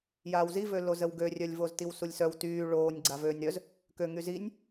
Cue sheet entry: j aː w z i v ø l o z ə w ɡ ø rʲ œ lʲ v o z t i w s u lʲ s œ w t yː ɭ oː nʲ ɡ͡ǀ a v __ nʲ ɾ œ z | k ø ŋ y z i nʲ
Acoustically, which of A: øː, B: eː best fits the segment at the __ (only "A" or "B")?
A